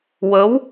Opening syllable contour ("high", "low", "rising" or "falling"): rising